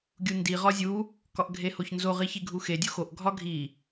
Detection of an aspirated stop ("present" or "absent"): absent